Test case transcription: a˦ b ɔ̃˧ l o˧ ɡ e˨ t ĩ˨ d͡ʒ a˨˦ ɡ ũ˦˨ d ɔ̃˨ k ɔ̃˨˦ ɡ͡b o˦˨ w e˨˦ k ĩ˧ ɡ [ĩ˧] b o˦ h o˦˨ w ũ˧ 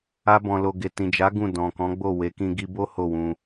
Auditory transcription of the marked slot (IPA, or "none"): i˧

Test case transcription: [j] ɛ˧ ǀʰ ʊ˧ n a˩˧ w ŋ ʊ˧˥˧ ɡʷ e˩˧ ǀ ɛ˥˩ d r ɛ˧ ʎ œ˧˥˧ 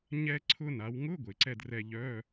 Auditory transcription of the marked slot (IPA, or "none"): ɲ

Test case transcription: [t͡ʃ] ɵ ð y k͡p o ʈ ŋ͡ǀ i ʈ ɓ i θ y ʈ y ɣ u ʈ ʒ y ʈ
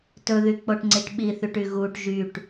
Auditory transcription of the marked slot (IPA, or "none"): t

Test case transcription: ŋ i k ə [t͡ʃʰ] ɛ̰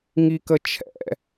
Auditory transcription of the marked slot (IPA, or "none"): t͡ʃʰ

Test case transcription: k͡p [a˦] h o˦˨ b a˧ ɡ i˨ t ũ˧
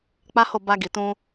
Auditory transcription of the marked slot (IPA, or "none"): a˦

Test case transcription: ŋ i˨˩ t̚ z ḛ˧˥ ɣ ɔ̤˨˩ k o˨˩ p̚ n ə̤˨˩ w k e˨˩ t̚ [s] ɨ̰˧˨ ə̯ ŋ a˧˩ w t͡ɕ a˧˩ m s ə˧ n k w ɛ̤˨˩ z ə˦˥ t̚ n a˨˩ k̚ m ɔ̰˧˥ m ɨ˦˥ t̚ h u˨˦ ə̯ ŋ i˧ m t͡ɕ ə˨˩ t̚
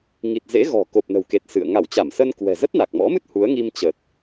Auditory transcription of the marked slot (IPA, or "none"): s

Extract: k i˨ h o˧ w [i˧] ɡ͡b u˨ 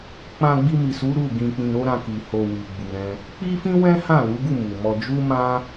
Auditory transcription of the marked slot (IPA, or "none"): i˨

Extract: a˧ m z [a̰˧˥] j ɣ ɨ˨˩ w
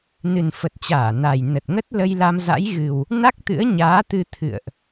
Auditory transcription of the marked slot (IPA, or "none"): a̰˧˥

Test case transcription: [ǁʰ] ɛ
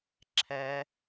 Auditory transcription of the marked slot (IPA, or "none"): ǁʰ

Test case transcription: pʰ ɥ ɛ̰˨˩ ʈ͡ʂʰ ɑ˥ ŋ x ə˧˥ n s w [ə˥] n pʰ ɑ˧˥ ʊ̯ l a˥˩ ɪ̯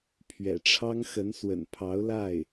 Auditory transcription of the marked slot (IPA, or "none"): ə̰˨˩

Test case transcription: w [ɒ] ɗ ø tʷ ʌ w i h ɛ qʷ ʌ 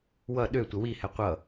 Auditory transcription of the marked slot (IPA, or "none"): ʌ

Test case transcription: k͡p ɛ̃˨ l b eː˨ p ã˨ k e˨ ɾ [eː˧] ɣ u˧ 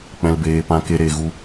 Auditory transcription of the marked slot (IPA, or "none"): eː˨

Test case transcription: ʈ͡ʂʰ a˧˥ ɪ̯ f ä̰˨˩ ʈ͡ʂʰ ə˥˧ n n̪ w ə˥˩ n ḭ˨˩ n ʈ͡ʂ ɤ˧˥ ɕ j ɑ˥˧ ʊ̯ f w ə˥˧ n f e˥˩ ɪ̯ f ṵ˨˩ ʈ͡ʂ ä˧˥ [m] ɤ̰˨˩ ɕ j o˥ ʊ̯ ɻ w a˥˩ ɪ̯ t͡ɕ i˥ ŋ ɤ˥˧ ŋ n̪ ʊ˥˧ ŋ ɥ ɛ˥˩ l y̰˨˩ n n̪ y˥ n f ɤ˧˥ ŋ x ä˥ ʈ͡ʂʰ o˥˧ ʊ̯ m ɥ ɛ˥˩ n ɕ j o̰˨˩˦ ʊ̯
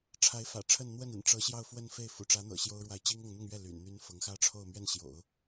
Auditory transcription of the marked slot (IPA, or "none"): n̪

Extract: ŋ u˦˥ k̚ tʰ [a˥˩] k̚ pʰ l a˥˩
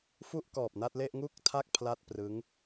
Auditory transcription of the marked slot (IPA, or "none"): a˥˩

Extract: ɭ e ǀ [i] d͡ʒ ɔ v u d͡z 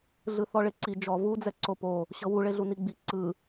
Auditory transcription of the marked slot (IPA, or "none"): i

